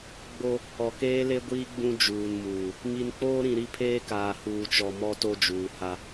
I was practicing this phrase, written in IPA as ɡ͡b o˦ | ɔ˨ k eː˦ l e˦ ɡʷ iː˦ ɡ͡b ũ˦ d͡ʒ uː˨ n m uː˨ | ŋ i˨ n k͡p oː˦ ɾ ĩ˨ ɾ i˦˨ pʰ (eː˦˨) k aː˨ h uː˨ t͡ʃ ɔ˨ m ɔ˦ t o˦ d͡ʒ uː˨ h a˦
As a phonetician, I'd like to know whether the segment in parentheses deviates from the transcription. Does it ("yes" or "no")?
yes